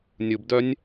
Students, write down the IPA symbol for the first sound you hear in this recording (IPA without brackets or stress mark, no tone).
nʲ